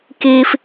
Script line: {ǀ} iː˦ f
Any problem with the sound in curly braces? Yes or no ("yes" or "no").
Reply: yes